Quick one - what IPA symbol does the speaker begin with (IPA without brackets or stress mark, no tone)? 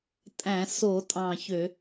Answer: tʼ